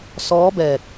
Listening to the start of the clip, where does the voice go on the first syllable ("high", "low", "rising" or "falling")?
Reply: rising